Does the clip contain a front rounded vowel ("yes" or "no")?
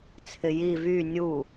yes